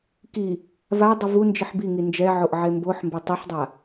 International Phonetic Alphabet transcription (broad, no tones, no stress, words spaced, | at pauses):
ki | vadˤi vu nd͡ʒiħbiŋi nd͡ʒɛʕoʔ ʕemboħmbe tˤiħdˤa